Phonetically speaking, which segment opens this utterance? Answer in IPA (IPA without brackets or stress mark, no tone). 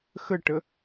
x